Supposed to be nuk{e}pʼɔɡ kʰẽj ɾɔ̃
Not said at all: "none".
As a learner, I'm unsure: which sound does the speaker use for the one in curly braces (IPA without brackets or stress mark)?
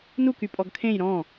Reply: y